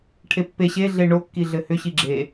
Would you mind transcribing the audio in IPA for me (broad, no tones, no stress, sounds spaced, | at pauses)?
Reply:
ʈʰ e pː e ɕ e ɮ e ɳ o kː i ɮ ɘ h ʏ ɕ i ɡ͡ǁ e